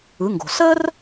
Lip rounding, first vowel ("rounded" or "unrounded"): unrounded